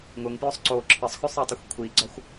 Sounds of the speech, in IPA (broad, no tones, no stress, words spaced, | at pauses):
ŋʊŋpjʊsˤ ǀo ǁʰəsˤxʏsˤɛtˤəxʷ kʷʰiɡ͡ǀɒxʷ